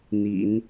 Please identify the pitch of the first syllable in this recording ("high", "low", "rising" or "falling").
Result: low